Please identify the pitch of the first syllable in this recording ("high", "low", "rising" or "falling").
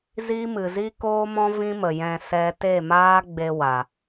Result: high